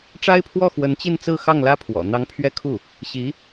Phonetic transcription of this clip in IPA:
ʈ͡ʂ a˥ ɪ̯ pʰ w ɔ˥˩ x w ə˧˥ n t͡ɕ i˥˧ n t͡s ɹ̩˥˧ x ɑ˥˩ ŋ l ä˥ pʰ w ɔ̰˨˩ n̪ ɑ˧˥ ŋ pʰ ɥ ɛ˥˧ kʰ u˥˩ | ɕ i˧˥

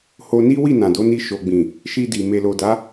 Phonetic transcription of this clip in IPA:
h o˧ n i˦ w i˦˨ n ã˨ d o˨˦ n i˧ ʃ o˨ ɡ͡b ĩ˨ | ʃ i˧ d i˨ m e˨ l o˨ d a˨˦

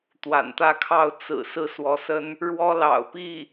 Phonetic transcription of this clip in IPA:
t̪ w a̰˨˩ n t̪ ä˥˧ kʰ ɑ˥˩ ʊ̯ t͡s ɹ̩˨˩ s ɹ̩˥˩ s w ɔ˧˥ s ə˥ n | ɻ w ɔ˥ l ɑ̰˨˩ ʊ̯ p i˥˩

